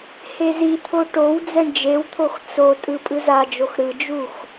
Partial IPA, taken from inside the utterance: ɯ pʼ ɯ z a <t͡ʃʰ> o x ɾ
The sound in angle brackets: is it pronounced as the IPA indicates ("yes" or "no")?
no